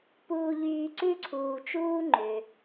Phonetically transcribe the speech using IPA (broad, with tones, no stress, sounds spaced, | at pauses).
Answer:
p uː˦ ʎ yː˦ ǀ ʉ˥ ǀʰ uː˨ t͡ʃ uː˥ ŋ͡ǃ ø˩